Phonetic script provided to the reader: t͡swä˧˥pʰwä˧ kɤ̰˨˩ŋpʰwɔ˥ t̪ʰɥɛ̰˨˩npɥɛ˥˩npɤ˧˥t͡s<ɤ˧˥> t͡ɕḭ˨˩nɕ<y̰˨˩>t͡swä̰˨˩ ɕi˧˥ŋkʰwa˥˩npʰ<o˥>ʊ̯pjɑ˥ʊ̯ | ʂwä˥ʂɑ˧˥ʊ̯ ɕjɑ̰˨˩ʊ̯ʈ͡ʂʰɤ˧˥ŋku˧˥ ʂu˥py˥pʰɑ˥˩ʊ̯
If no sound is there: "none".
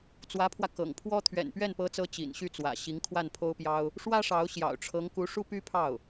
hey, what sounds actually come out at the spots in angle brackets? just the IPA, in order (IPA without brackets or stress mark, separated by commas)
ɤ˧˥, y˥˩, o˥